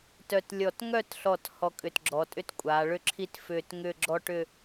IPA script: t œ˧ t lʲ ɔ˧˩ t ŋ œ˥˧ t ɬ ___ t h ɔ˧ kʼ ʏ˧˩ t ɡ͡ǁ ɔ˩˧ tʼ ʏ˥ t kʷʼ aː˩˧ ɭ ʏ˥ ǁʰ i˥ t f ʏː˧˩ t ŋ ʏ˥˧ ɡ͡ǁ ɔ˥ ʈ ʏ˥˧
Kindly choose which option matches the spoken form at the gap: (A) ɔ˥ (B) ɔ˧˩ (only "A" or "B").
B